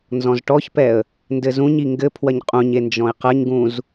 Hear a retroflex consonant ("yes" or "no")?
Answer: yes